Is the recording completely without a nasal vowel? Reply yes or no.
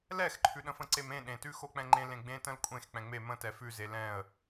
no